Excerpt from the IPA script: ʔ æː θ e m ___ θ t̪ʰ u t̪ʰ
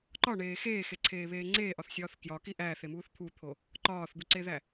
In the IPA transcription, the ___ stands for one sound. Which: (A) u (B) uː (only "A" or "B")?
B